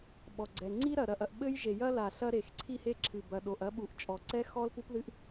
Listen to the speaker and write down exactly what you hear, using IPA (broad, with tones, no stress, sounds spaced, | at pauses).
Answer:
ɓ ɔ˩ ɡ͡ǀ ɛ˩ ŋ͡ǀ i˥ ɾ ɐ˩ ɾ ɐ˩ ʔ ɐ˩ ʔ ɓ ɘ˥ j ʒ e˩ j ɐ˥ l a˩ ɬ ɐ˥ ɾ e˩ x ǀʰ i˥ h e˥ ǁʰ ɨ˩ b ɐ˩ ɗ o˩ ʔ ɐ˥ ɓ u˩ ʔ t͡ʃʼ ɔ˩ ǀ ɛ˥ x ɔ˥ l p u˥ p ð ɨ˥ ʔ